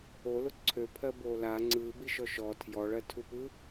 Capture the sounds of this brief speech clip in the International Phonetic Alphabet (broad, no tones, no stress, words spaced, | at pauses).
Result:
olʊ ǀʰøpʰɜboː la ŋ͡ǀɯːbiʃɔ ʃɔ tʰjɔɭɜtʰupɯ